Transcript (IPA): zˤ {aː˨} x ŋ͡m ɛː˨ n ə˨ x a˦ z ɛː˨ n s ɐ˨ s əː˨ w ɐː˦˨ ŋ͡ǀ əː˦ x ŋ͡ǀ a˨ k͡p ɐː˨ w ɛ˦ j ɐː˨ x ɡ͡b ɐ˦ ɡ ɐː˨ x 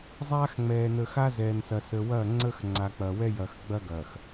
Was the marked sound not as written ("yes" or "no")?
yes